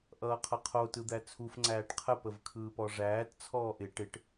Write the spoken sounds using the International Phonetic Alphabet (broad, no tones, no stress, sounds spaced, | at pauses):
ʔ ʌː qʰ ʌ qʰ o t ɯ d̪ æ t͡sʰ u f ŋ͡ǀ æː ʈ qʰ ə p ə v kʰ ɯː p ɔ ʐ æː t t͡sʰ ɔː ʔ ɪ ʈ ɪ ʈ